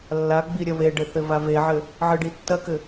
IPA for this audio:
lː a ɡ͡b i ɾʲ ɐ β e ɖ ɘ θ ɘ v a v e ʕ ɘ | ʕ ɨ ɖ i tː ɐ k ɘ

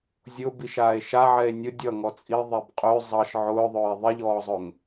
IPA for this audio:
zʲ ʊ b i ʃ aː e̯ ʃ a ʕ ɛ e̯ nʲ ʊ dʲ ʌ ŋ ɔ t͡sʼ i ðˤ ɛ b qʼ ø zˤ ʌ ʃ ʕ ʊː ðˤ ʊː e̯ ðˤ i ʎ ɔː zˤ ʊ ŋ

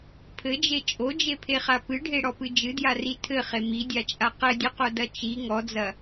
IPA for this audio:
pʰ ɘ d͡ʒ e t͡ʃʼ o d͡ʒ e pʰ e χ a p ɨ ɖʱ e ɽ ɔ p ɨ d͡ʒ ɨ d j a r i tʰ ɘ χ e m i dʲ a t͡ʃʼ a q ɘ dʲ ɘ q o d ɐ t͡ʃ i ŋ ɔ d͡z ɐ

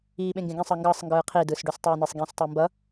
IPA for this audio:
iː ɓ ẽ ŋ ɡ ẽ ɡ ẽ sˤ ʌ ŋ ɡ ʌː sˤ ŋ ɡ ɯː qʰ i d ɯː s ɖ o s tˤ oː n e sˤ ɡ ĩː s tˤ ɛ m b ʌ

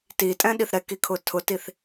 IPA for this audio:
t i tʼ ɛ̃ ɗ i θ ɾ ɛ k i kʰ ʊ tʰ ʊ t i θ

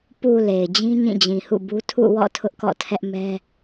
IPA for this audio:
p u˨ l e˨ ɪ̯ d͡ʑ ĩ˦ ɲ ĩ˦˨ d͡ʑ ĩ˨ h ṵ˦˨ b u˦ tʰ ṵ˦˨ w ɔ̰˦˨ tʰ ʊ˦ ʔ k ɔ̰˦˨ tʰ ɛ˦ ʔ m ɛ˦

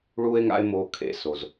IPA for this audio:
ɭ u˦ e̯ ŋ a̰˦ e̯ m o˧ kʰ ḛ˧ s o˨ z

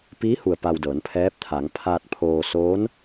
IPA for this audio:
p iː˧˥ h u˩ ə̯ p a˧ w d ɤː˩˧ n pʰ ɛː˧˥ p̚ t̪ʰ aː˩˧ ŋ pʰ aː˧ t̚ pʰ oː˧ s oː˧˥ n

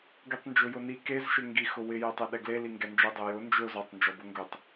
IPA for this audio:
ɡ i tˤ n d͡ʒ ʊ j ʊ n i k e z ʃ ɪ ŋ ɡ i x ʊ w ɪ j ɛ tˤ ɛ ɗ ɛ ɡ l e l i ŋ ɡ ɛ n d͡ʒ ɛ dˤ e j ʊ n d͡ʒ ʊ z ɔ tˤ n d͡ʒ ɔ b ʊ ŋ ɡ ʊ tˤ

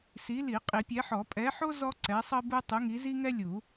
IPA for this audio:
s i˨˦ l i˨˩˦ qʼ i˨˩˦ pʲ ɛ˨˦ ħ ɔ˨˩˦ pʼ ɛ˨˦ ħ o˥ z ɔ˥ ǀ ɛ˨˦ sˤ ɤ˥ b u˥ tˤ u˨˦ ŋ i˨˦ z i˥ ŋ ɛ˥ lʲ u˨˩˦

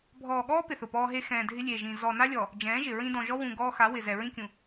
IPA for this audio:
bʱ ɔː˨ ɠ ɔː˦ p ɪ˨ θ ʊ˨ p ɔː˦ ɦ e˦ x ɛ̃ː˨ dʱ ɪ˦ lʲ eː˨ ʒ ĩ˨ z ɔ˨ n a˦ lʲ ɔ˨ | d͡ʒ ɛ̃ː˨˦ ʒ ɪ˨ ɹ ĩ˦ d ɔ̃˨ ʒ ɔ˦ w ũ˨ ɡ ɔː˦ x a˨˦ w ɪ˨ z ɛ˨ ɹ ĩ˦ kʲ ũ˨

